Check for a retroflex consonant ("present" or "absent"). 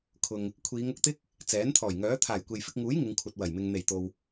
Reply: absent